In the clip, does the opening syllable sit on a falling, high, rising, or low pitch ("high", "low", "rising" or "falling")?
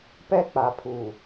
high